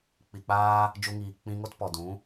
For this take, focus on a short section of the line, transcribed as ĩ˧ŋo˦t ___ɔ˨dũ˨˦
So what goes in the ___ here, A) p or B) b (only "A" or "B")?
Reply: A